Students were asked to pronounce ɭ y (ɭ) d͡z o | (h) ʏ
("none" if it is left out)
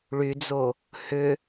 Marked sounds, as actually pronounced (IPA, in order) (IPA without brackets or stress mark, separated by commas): none, h